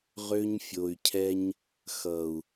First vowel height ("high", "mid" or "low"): mid